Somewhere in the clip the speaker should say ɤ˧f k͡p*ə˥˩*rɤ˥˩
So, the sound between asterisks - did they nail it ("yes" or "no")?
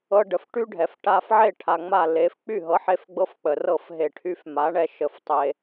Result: no